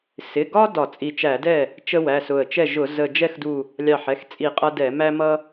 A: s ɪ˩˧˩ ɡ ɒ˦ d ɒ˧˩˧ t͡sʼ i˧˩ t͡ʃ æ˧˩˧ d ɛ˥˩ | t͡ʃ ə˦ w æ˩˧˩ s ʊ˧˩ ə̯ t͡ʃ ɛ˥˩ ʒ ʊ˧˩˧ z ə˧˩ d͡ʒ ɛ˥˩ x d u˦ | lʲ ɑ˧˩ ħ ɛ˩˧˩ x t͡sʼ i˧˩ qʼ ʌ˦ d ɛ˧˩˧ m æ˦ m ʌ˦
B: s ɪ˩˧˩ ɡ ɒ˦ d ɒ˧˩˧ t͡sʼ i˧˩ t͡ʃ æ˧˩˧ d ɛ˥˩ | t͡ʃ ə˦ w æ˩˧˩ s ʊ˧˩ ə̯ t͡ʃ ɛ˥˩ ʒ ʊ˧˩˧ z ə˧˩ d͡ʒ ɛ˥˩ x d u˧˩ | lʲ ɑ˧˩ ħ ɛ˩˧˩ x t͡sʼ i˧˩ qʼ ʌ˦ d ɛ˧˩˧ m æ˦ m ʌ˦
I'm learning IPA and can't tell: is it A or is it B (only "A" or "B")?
B